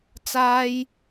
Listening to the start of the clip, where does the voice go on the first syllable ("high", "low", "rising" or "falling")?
high